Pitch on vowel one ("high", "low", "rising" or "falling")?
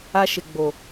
high